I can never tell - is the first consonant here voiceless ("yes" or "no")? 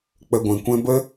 yes